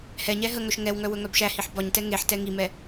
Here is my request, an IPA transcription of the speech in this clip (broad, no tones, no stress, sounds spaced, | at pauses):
h ɛ ɲ ɛ ɦ ə ŋ œ ʃ ŋ ɛ w ŋ œ w ɵ ŋ œ b ʃ æ h i ħ b ɒ ɲ t ɛ ŋ e ħ t ɛ ŋ i m ɛ